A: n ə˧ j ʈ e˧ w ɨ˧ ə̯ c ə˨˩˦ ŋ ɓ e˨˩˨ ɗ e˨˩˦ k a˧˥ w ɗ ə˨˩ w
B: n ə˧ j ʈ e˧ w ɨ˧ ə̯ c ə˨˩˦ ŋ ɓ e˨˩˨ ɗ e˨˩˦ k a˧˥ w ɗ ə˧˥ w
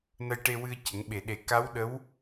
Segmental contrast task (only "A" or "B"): B